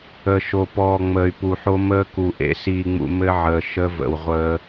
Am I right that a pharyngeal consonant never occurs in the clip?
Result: no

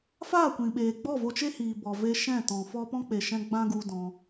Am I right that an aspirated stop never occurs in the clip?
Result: yes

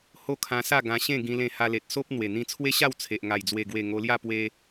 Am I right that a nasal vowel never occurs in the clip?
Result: no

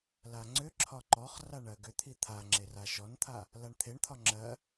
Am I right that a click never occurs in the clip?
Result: no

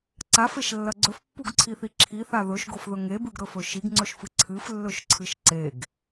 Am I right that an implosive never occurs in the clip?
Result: yes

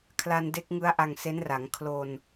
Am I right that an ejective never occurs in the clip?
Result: yes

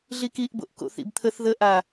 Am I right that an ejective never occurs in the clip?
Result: yes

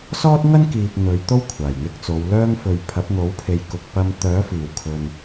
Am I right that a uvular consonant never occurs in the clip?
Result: yes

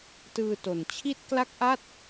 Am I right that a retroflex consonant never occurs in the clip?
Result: yes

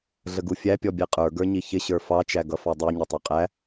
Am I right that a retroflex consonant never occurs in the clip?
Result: yes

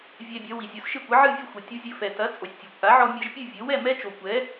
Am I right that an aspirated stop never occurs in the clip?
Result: yes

